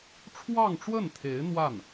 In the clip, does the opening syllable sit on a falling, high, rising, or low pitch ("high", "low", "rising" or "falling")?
falling